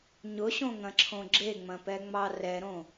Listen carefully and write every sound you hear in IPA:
ɲʊɕõŋɐ̃ǁʰõ ɡ͡ǁeŋ͡mɐ̃pɛŋ͡mɑ rɛɾõ

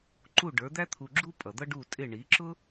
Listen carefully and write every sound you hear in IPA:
ǃu˥˩ ɖə˞˩˥d̪æ˥t̪ʰu˧ɡ͡ǁu˥ pʼʌ˩d̪ʌ˥ɖu˥˩ tʼɪ˥˩ ɳi˩˥ǁʊ˥

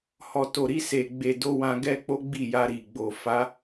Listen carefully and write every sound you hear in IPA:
hɔ˨to˨ɾi˧ se˨ɡ͡be˨do˧ wã˧ɡɛ˦k͡po˦ɡ͡bi˦˨ ja˧ɾi˨ ɡ͡bo˨ fa˨˦

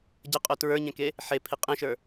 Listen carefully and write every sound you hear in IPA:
ɟəqʼo tɹə˞ɲɛ̃ke | ħepʰi qʼẽʃə˞

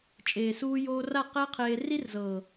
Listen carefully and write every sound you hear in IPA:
t͡ʃʼeː˨suː˧joː˧ra˦˨ qɛ˦qʰeː˧ ri˦rzɤː˨

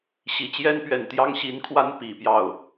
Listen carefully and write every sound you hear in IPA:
ɕi˨˩t͡ɕjɛ˥npɥɛ˨˩n t̪jɑ˥ŋɕi˧˥nkʰwa˥n pi˨˩pjɑ˥˩ʊ̯

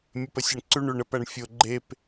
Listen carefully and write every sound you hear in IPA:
mʲʉpəsʲeɳǀʉɳ ʉɳəp æɳfʲo ɡ͡ǃep

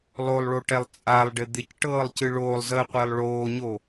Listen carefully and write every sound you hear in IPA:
lˠolˠɭoʈɛlˠ t͡sʼalˠɖɪ d̪ɪcʈɤːlˠcɨ ɭoːlˠzəːqʷɪːlˠ ɭoːɲo

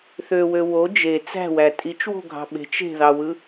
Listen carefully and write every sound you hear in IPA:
θøwø wo d͡ʒe t͡sæ̤wæ tʼit͡ʃwo̤ɡʱɑ̤ ɓe̤t͡ʃ e̤ðɑwɯ

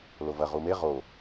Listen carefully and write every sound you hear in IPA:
lovɐ ʁume ʁo

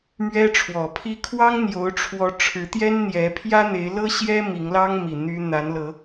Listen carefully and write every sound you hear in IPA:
mɥɛ˦ ʈ͡ʂʰwɔ˨˩pʰi˦ kʰwɑ˦ŋn̪jo˨˦ʊ̯ʈ͡ʂʰwɔ˨˦ ʈ͡ʂʰɻ̩˨˦t̪jɛ˦nn̪jɛ˨˦ pʰjä˦n̪e˨˦ɪ̯lɤ˦ɕjɛ˦ mi˨˦ŋlɑ˦ŋmi˨˩ n̪y˦ n̪a˨˦nlɤ˨˦

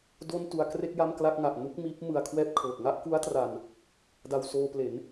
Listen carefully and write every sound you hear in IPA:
do˥˩ntu˧a̯kre˥˩k̚ ja˥˩mkla˥˩k̚ŋa˨˩ʔ nu˥˩k̚miː˦˥p̚ mɯ˧a̯kʰwɛː˥˩p̚kʰɤː˨˩k̚ ŋa˥˩ʔku˦˥a̯tra˨˩n | da˧wsoː˧ple˩˦n

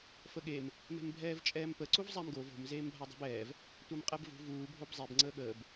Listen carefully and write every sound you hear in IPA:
fəɠem | me̤mbʱɛːvt͡ʃʼɛːmpə ǀuvzˤæmɡov o̤m zeːmbʱadˤo̤bɛːv | tʷamqʼɛbvṳ vuː bʱobzˤeb ŋ͡ǀəːɠəːb

